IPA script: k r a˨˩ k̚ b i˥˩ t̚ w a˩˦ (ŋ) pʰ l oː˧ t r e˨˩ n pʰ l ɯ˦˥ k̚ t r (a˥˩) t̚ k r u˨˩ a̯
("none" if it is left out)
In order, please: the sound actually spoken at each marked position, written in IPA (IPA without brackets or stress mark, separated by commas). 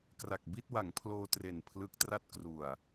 ŋ, a˥˩